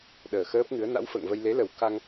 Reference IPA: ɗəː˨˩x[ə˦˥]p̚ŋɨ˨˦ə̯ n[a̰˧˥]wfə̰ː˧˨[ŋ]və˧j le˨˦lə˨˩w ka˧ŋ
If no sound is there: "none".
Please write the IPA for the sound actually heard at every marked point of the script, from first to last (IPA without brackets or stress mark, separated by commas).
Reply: əː˦˥, a̰˧˥, ŋ